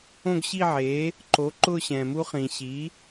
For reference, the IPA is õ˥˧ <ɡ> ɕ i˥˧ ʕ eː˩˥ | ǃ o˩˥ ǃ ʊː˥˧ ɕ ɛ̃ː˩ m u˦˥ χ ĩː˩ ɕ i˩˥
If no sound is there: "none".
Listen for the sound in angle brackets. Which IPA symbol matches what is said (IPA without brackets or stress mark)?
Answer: ɡ